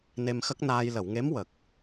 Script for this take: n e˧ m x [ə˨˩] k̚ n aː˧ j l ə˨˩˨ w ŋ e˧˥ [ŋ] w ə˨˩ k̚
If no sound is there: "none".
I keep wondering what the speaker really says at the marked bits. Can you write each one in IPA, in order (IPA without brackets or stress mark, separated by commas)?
ə˦˥, m